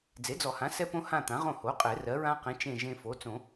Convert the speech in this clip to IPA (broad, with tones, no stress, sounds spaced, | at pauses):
d͡z e˩˥ d͡z ɔ˨˩˦ h ã˩˥ s ɛ˦ p õ˦ h ã˦˨ t̪ ã˩˥ ʁ õ˦˨ h o˩˥ qʼ ɛ˨˩˦ r ɜ˩˥ ɹ ã˦ q ẽ˩˥ t͡ʃ ẽ˦˨ ʒ ẽ˦ f o˩˥ t͡s õ˨˩˦